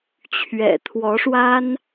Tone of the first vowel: low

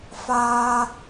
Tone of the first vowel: high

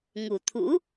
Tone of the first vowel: low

